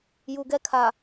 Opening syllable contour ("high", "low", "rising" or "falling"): low